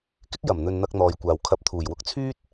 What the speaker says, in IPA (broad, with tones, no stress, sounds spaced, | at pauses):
k ɪ˥ k̚ j ɐ˨˩ m n̪ ɵ˨ n n̪ ɐ˧ k̚ n̪ ɔː˨ j kʷ aː˨ w kʰ ɐ˧ p̚ t̪ʰ uː˨˩ j w ʊ˧ k̚ t͡sʰ yː˥ t̚